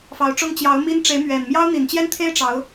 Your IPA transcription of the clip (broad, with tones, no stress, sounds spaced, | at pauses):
f ɑ˧˥ ʊ̯ ʈ͡ʂ ʊ˥ ŋ t͡ɕ j ɑ˧˥ ʊ̯ m i˥ n ʈ͡ʂ e˧˥ ɪ̯ m ɥ ɛ˨˩ n m j ɑ˥ ʊ̯ n̪ i˨˩ n t͡ɕ j ɛ˥ n t̪ʰ e˥ ɪ̯ ʈ͡ʂ ɑ˧˥ ʊ̯